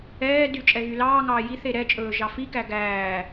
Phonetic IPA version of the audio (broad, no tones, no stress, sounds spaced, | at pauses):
ɛː d y t͡ʃʼ ɛ ɣ y l ɑː ŋ ɑː j i θ e ɾ ɛ t͡ʃʼ ɵː ʒ ɑ f i k æ ɡ æː